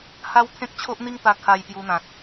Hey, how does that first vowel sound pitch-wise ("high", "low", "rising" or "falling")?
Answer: high